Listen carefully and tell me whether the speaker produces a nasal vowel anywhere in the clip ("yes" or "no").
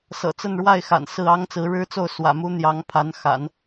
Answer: no